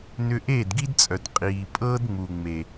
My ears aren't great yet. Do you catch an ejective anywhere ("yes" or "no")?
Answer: yes